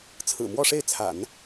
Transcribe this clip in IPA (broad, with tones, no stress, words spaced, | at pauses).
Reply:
t͡sʰɹ̩˨˩mwɔ˥˧ʂe˥˩ɪ̯t͡sʰa̰˨˩˦n